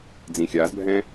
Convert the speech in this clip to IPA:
d͡z ĩ xʲ a z bʱ ɛ̃

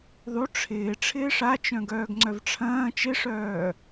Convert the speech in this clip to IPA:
ðˤ u ʈ͡ʂʰ ɪː ʈ͡ʂʰ ɪː ʂ a t͡ʃ œ̃ ɡ œː ɡ ŋ͡ǀ œ v ʈ͡ʂʰ ɐ̃ː t͡ʃ ɪ ʂ œː

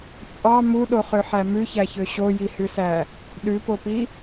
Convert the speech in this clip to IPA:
t͡sʼ ɑ m u ɗ o χ ø ħ æ m ʉ ç æ ç ø ɕ o j i h ʉ s æ | ɗ ʉ p o p i

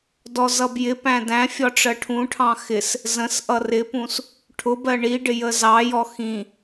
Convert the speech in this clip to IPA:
d ɔ z ʌ b j ɪ p æ̃ d æ̃ fʲ ɒ ʈ͡ʂ ɜ ʈʰ ũ ʈʰ ɑ̃ x ɪ s | z ə̃ s ʔ ʌ r ɪ p ũ s | ʈʰ ʊ b ɜ ɳ i ɖ ɪ j ə z ɑ j ɔ x ĩ

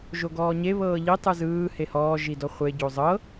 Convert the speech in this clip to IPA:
ʒ o ɡ ɔː ɲ e β ɤː ʎ i tˤ ɯ z ɯː h e h ɔː ʒ i d ɔ χʷ e ɟ o zˤ ɤ

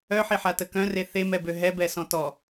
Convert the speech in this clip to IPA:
œ ħ i ħ a t ə k œ̃ r e θ e m ɛ b ø ɦ ɛ b ɛ s ɔ̃ t ɔ

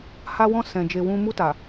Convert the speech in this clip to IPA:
h a˧ w ɔ̃˧ s ɛ̃˨ d͡ʒ e˨ w ũ˧ m u˧ t a˨

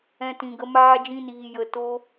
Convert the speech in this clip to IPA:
ɛ̃˦ t ĩ˧ ɡ ə˦ m aː˦ d͡ʒ ĩ˦ n iː˧ j ə˧ t o˦

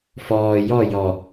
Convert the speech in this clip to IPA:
f ɔː j ɔ j ɔ

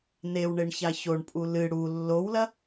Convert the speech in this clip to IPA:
n e w ɳ e ɳ ç a ç o ɳ pʼ u l ɨ ɽ u lː o w l ɐ

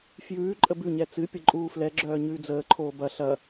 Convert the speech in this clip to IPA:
f j ʉː ǃʼ ə b ʉ ɲ ɛ t͡s ɨ pʲ ə ǃʼ uː f l ɛ ɡ͡ǁ œː ɲ ʉː d͡z əː ǃʰ oː b ɐ ɬ ɐ

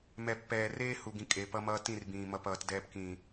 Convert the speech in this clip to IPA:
m ɛ˨ pː ɛː˨ r eː˦ h u˨ ɡ ĩ˨ kʼ e˨ p ʌ˦ m ʌː˦ t ĩ˦˨ r b ĩː˨ m ʌ˨ p ʌː˨ t d ɛː˨ p k ĩː˨

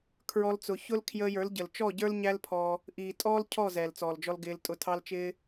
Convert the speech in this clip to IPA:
kʰ ɹ ɔ˦ l t͡s ʊ˧ ç ʊ˦ l kʰ j əː˧ j ə˞˨˦ l ɟ ə˨ l t͡ʃ ɔ˦˨ ɟ ə˞˦ l ɲ æ˦ l pʰ ɔ˧ | ʔ iː˨ tʼ ɔː˦ l cʰ ɔ˦˨ z ɛː˨ l t͡s ɔː˨ l d͡ʒ ɔ˧ l ɡ ɪː˧ l tʼ ʊ˧ tʰ ɑ˦ l t͡ʃ ɪː˦

